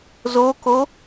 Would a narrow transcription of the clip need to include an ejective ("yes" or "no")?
no